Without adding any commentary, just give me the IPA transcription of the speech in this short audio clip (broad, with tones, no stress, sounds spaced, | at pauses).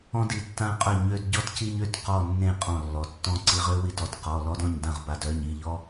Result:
ɔ̃˥ d i˩ tː ã˥ qʼ œ˥˨ ɲ ø˥ d ɟ ɔ˥ t c i˥ ɲ ø˩˧˩ t q ɔ˥˨ nː ẽ˥˨ qʼ ɔ̃˧˩ lː ɔ˩ tː ɔ̃˥˨ ǀ i˧ ʁ ø˥ w i˥˨ d ɔ˧ t q ɔ˩˧˩ l ɔ˥ d ɔ̃˥˨ ɲ d ã˥˨ ʁ b a˧ d œ˩˧˩ ɲ i˩˧˩ ʎ ɔ˥